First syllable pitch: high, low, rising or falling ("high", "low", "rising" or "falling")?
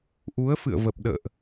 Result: rising